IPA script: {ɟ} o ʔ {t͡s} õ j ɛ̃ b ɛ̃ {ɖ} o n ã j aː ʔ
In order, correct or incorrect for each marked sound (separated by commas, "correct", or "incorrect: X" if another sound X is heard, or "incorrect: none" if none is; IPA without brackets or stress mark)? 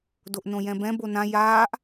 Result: incorrect: d, incorrect: n, incorrect: b